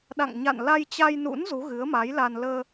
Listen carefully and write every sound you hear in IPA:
ɗ a̰˧˨ ŋ ɲ a̰˧˨ n l a˧ j t͡ɕ a˧ j n ṵ˧˥ n z u˨˦ ɣ ɨ˨˦ ə̯ m a˨˦ j l a˧ n l əː˧

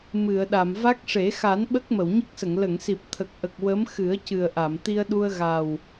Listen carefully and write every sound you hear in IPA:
m ɨ˨˩˨ ə̯ ɗ a˨˩˨ m v a˦˥ k̚ ʂ e˨˩˦ x a˨˩˦ n ɓ ə˦˥ k̚ m ə˨˩˨ w ɲ ə˦˥ k̚ s ə˨˩˨ ŋ l ə˨˩˨ ŋ s i˨˩ p̚ t̪ʰ ə˨˩ k̚ ʔ ə˨˩ k̚ w ə˧˥ m x ɨ˨˩˦ ə̯ c ɨ˨˩ ə̯ ʔ a˨˩˨ m t̪ i˧ ə̯ ɗ u˧ ə̯ ɣ a˨˩ w

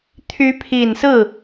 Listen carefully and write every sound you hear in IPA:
t̪ʰ y˧˥ pʰ i˨˩ n s ɹ̩˥˩

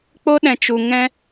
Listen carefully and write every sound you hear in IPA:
k͡p o˦ ɗ ɛ̃˧ t͡ʃ u˧ ŋ ɛ̃˦

